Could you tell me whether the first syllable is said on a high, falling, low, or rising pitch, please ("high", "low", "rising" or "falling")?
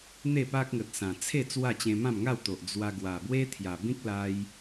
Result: falling